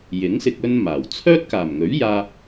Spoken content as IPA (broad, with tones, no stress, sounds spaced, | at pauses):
j ɪ˨˥ ŋ s ɪ˧ k̚ ɵ˥ n m aː˨˩ w t͡sʰ œː˥ t̚ k aː˨˩ m ŋ ɵ˨˥ ɥ j aː˧